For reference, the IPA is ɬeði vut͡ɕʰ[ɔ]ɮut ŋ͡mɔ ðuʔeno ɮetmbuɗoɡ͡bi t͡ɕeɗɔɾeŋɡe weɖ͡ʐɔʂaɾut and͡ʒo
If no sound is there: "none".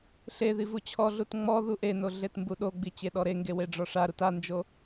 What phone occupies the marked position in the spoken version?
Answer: ɔ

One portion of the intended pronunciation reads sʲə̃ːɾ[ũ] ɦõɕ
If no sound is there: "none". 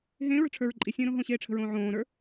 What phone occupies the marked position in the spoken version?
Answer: õ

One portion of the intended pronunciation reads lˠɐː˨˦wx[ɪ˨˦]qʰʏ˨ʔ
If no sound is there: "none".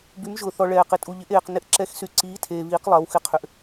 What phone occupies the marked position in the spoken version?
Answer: ɪ˨˦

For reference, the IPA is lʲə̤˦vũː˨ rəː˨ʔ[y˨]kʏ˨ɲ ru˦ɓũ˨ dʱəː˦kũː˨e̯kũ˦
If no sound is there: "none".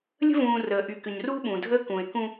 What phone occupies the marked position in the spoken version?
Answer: y˨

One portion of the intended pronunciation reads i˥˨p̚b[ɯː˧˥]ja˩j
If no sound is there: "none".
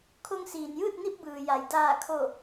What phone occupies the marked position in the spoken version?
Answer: ɯː˩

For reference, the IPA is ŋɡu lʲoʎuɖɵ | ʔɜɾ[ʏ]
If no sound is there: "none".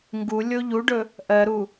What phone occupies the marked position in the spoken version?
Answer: u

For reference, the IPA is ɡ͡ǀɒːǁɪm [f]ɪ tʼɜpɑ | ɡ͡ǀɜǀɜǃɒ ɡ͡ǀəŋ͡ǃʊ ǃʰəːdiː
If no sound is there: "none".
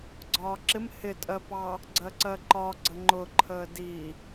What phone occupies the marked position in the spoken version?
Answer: h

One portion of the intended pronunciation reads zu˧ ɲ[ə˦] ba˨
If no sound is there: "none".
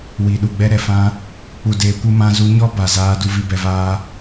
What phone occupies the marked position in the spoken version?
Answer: ɔ˦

